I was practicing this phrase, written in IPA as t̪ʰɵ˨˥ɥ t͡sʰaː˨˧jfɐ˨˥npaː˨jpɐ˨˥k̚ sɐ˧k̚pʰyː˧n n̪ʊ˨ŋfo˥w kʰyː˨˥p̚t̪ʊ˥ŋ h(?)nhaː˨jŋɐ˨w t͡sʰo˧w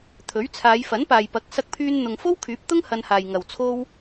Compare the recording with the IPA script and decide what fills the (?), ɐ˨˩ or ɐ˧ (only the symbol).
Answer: ɐ˧